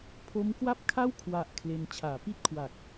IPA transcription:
pʰo˦˥mkwa˥˩p̚kʰa˥˩w kʰwa˨˩ʔ kʰle˧n t͡ɕʰaː˩˦pi˥˩t̚kʰwa˨˩k̚

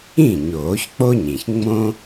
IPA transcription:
ĩ˥˩ ɲoː˨˩˦çk͡po˥ɲĩ˩ç ŋ͡mõ˥

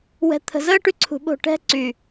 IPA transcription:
wɛ̤˨t̪ʰə̤˨zəː˦ ʈy˦ǀʰṳ˨ɓo̤˦˨ ʈɛ̤˦ ǀy˨

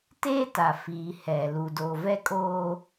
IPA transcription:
teː˦ta˨fiː˨ hɛ˨ lu˨do˨ vɛ˦kʼoː˦

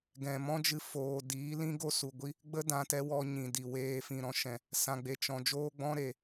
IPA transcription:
ɡɛ̃˨mɔ̃˦d͡ʒɨ˧ foː˨diː˨˦ lĩ˦ɡo˦su˨ɡʷi˦ | ɡ͡bə˦ dã˧tɛ˧wɔ˧ ɲĩ˨di˨weː˧ fĩ˨ɾɔ̃˧ʃɛ̃˨ | sã˨ɡ͡be˨ t͡ʃɔ̃˨ d͡ʒoː˦ɡ͡bɔ̃˦ ɾe˨

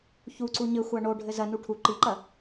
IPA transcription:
çuǀu ɲɘxʷa ɳo ɖʱɘzɐnu ʈʰu ǃiǃɐ

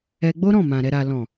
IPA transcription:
ɛ˧ ɡ͡bo˦ɾɔ̃˦˨mã˨ ɾɛ˨ɾa˨lɔ̃˨

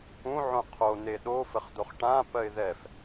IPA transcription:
ũʕõ qʰon̪e ɗo fəχd̪oχʈãpɜɪ̯ ðɛf

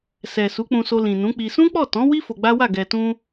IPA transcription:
sɛ˨su˨˦k͡pũ˧so˧ lĩ˨nũ˨˦k͡pi˧ sũ˦k͡pɔ˦˨ tɔ̃˨˦wi˦ fo˧ɡ͡ba˦wa˦˨ ɡɛ˨tũ˧

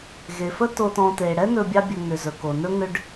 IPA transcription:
ɣe˩fə˥ to˨tɔ̃˨te˩ ɽɛ˦nɵ˨ bʲɑ˦bʲɵ˨ŋʏ˩zɵ˩ ko˩nɵ˦ ŋʏ˦ɖ

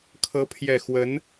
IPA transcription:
kʰɤ˨˦ pʰjɛ˨˩ xwə˨˦n

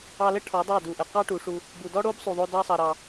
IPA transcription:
ɑ˧lə˦ ʈʰɔ˨˦dˤɑ˦˨du˨ʔə˨ qɑ˦ʈu˨˦ʂu˧ | bu˨dɔ˦ɽo˦b sˤu˨ðˤo˧ dɑ˦sˤɑ˧ɾɑ˧

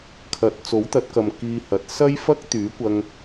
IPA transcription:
kʰɐ˨˥t̚ t͡so˨˥wt̪ɐ˨˥t̚kɐ˨m kiː˧hɐ˨t̚ sɐ˥jfɐ˥k̚ t̪yː˨˥kʷɐ˧ŋ

